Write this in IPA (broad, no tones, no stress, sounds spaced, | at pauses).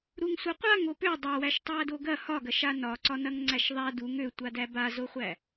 ɾ u ŋ sʷ a qʷ a ŋ o p ø dˤ ɐ w æ ʃ tˤ æ d o ɡ ɐ h ɒ ɡ ɐ ʃ a n ɒ ǀ ɒ n ɐ ŋ ŋ͡ǀ æ ʃ ðˤ a d u ŋ ø tʷ a d æ b a z o χʷ æ